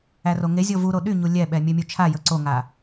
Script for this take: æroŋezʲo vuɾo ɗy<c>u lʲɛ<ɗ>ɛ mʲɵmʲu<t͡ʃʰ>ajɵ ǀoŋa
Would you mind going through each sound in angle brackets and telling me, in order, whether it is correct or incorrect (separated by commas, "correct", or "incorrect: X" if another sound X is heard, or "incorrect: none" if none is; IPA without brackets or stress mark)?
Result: incorrect: ɲ, incorrect: ɓ, correct